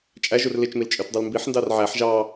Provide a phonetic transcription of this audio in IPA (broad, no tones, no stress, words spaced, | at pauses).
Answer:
t͡ʃʼæʒur lit͡ʃmil t͡ʃʼøtdˤulmbiħndɑr ʕæħ ʒɑ